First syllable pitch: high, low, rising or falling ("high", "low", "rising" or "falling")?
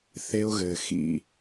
high